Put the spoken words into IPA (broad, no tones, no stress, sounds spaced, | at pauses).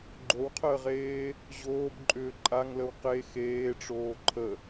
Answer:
ɡ͡ǃ o w qʰ əː ʁ eː | ʑ oː b ǃʼ ʏː ǃʼ a ŋ l ə w q e x eː ʈ͡ʂ oː ǃʰ ə